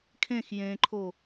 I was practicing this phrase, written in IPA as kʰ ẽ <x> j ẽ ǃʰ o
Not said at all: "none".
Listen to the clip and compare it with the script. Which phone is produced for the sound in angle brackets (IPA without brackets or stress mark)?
x